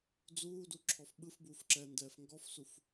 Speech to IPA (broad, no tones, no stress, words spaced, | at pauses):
d͡zuːduǁʰɔf ɓɯfbuːfǁɛːndɛːf ŋɡɔfsuf